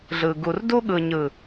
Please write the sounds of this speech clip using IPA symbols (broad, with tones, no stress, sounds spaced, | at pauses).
ɮ ɯ˨ ɡ u˨ r d u˦ ɠ ɯ˨ ɲ ɯ˨